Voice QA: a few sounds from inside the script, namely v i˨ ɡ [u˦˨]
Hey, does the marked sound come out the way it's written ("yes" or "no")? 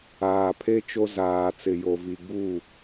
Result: yes